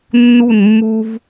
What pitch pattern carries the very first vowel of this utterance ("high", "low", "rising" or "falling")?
falling